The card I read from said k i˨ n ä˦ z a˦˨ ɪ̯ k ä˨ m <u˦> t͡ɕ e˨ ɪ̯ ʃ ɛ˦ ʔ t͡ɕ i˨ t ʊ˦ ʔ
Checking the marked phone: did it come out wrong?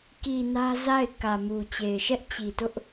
yes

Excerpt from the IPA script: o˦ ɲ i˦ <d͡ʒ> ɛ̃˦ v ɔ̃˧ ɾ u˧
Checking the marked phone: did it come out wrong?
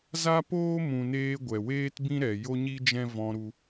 no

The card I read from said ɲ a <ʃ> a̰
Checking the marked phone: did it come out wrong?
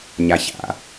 yes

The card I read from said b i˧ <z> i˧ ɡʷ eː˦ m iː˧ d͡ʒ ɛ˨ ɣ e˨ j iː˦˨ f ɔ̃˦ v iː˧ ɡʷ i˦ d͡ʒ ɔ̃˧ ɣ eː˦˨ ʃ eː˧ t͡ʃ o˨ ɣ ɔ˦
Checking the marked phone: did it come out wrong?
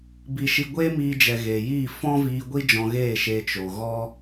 yes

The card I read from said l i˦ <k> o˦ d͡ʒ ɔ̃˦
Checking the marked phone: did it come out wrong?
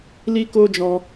no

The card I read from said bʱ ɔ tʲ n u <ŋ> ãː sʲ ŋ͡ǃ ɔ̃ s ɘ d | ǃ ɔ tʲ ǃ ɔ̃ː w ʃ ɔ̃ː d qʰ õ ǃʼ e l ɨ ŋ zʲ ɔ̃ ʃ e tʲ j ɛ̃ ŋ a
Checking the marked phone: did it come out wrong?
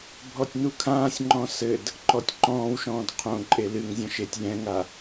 yes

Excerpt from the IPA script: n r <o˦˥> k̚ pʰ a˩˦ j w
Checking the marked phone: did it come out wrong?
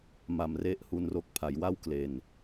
no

